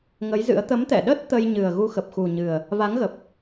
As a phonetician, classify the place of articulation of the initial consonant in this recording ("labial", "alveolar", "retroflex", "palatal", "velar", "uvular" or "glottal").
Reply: velar